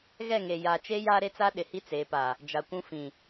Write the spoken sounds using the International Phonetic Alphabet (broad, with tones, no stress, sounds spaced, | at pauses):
ɣ ɛ˦˨ ŋ e˨ j a˨ t͡ʃ e˦ j aː˦ ɾ e˦ t͡s a˦ ɗ ɪ˨ h i˦ t͡s e˨˦ p a˨ | d͡ʒ a˨ kʷ ũ˦ f ĩ˨